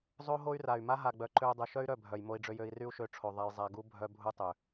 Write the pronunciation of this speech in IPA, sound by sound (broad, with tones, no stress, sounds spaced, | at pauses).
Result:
zˤ o˦ ɦ o˦ y̯ r a˨ y̯ m a˦ ɦ a˨ ɡ͡b œ˨ ǃ ø˧ u̯ dˤ u˨ ʃ œ˦ y̯ ɾ œ˦˨ bʱ œ˨ j m o˧ i̯ ɖ͡ʐ ø˧ j ø˧ i̯ r y˦ u̯ ʃ ø˧ ʈ͡ʂʰ o˨ ðˤ a˧ j zˤ a˧ ɡ u˦ bʱ œ˦ bʱ u˦ tˤ ø˨